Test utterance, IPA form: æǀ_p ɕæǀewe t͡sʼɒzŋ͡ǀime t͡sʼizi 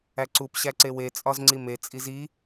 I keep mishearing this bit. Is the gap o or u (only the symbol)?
u